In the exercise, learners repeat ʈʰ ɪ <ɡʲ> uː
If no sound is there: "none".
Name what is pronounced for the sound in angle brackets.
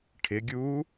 ɡʲ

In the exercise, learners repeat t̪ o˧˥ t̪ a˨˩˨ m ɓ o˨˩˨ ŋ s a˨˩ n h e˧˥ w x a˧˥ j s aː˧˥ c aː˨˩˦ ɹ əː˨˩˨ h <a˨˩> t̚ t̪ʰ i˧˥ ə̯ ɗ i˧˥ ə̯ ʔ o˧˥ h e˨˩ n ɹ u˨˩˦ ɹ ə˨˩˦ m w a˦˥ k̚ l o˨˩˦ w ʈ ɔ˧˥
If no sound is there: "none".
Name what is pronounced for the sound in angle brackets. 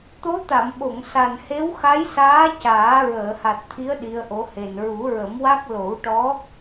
a˨˩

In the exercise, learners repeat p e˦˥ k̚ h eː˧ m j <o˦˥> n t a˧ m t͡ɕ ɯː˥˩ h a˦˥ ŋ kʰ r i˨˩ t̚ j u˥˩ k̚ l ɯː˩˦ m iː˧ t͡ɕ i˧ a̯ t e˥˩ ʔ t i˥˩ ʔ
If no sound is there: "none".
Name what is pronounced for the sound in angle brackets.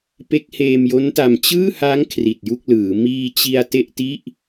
o˦˥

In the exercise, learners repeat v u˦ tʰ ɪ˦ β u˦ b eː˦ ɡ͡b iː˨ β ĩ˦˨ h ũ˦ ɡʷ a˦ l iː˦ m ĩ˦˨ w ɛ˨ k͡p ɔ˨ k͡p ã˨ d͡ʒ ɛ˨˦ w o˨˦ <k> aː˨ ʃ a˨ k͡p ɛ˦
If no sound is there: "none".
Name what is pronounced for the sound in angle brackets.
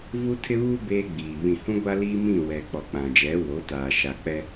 t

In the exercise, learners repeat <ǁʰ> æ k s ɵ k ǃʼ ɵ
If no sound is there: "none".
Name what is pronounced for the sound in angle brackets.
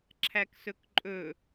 ǁʰ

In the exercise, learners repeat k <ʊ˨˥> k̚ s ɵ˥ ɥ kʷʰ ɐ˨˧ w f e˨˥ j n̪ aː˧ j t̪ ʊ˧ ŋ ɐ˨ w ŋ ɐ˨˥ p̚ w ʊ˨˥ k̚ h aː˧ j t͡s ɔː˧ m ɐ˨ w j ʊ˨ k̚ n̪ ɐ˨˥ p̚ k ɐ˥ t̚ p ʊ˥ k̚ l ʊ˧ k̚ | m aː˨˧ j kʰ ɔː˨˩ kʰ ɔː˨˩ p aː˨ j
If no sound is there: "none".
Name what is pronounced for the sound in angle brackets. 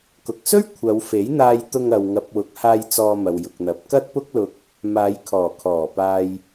ʊ˨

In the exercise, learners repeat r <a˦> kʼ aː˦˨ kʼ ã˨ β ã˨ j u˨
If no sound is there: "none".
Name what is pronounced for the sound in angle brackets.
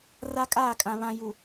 a˦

